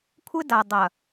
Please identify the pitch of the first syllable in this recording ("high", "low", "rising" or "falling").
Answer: high